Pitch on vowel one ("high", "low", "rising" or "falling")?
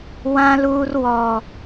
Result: high